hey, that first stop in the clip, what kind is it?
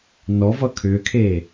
aspirated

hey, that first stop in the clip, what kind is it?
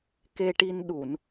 plain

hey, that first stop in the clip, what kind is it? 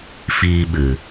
implosive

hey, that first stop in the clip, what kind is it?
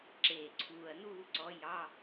click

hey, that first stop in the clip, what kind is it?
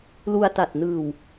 plain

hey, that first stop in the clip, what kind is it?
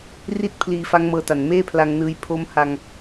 plain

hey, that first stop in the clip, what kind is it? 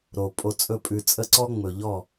ejective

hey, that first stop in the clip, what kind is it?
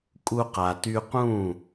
ejective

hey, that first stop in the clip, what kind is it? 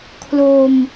aspirated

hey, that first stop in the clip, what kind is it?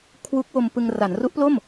aspirated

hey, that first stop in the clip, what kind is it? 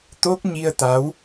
plain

